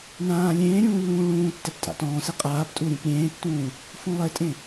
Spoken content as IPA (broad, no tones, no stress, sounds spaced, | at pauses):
n ãː lʲ ẽː ɾʲ ũː lː ũː ɭ ũː tː ɛ p tʼ a̰ t ɔ̃ː s e qʼ aː p tʼ u ɾʲ ũ p ɾʲ ẽː tː ũː | f ũ lˠ e tʼ ẽ